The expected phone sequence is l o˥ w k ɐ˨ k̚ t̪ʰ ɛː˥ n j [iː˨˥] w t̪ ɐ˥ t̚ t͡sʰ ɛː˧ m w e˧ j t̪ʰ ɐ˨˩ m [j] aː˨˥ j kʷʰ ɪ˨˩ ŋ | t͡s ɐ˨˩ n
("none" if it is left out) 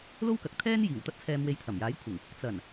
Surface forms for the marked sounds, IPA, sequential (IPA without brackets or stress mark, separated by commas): iː˨˩, j